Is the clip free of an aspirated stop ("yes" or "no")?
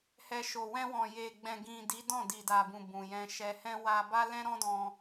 yes